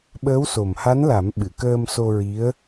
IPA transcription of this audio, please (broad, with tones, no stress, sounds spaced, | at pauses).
ɓ əː˧˥ w s o˨˩ m h a˧˥ n l a˨˩˦ m ɓ ɨ˨˩˨ k əː˧ m s o˧ ɹ i˧˥ ə̯